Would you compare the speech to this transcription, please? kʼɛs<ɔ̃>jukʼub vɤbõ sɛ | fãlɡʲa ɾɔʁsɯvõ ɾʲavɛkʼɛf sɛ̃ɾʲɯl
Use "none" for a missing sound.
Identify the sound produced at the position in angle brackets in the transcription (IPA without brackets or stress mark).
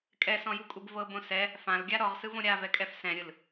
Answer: ɔ̃